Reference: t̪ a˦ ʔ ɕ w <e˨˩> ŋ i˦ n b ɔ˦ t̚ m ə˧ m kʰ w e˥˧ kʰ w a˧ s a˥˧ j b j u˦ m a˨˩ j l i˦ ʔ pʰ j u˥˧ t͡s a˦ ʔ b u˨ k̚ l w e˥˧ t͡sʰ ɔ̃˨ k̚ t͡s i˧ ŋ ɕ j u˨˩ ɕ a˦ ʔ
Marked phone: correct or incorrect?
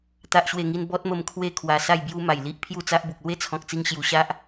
incorrect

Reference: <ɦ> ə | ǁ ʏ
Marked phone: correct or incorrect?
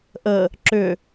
incorrect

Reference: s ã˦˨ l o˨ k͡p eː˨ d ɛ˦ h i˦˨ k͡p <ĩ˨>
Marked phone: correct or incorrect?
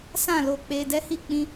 incorrect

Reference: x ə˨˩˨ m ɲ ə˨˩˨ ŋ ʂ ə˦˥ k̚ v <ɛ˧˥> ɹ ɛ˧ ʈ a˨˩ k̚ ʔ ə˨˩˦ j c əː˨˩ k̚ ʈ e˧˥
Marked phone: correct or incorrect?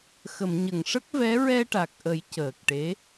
correct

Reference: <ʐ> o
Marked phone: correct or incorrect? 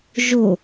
incorrect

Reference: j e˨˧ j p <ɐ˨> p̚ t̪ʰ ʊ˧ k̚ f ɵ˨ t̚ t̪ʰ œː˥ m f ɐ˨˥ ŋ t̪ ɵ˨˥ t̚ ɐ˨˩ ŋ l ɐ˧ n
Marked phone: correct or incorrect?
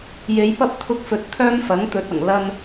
incorrect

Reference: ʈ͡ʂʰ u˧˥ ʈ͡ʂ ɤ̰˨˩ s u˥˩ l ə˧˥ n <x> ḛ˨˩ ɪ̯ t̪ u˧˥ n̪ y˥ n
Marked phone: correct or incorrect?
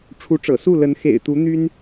correct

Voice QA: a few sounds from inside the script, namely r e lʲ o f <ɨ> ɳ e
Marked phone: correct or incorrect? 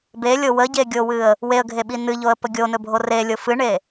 correct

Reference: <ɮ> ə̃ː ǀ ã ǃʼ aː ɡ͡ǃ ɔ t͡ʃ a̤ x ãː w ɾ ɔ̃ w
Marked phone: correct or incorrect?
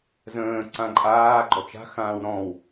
incorrect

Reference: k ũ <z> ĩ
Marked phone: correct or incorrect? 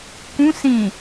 incorrect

